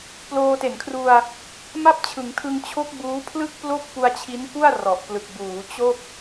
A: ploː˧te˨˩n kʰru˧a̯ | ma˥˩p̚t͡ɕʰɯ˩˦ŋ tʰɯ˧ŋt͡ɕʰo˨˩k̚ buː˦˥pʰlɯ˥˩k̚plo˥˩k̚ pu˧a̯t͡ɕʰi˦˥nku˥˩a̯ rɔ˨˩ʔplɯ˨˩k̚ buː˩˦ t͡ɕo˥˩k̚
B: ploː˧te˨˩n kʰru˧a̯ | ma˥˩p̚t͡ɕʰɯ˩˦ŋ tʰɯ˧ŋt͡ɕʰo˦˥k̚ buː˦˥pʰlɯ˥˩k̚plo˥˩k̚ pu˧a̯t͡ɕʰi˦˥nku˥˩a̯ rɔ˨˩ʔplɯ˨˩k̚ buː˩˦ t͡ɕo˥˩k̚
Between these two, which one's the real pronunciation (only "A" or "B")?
B